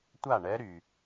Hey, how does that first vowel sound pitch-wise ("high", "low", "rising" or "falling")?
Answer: falling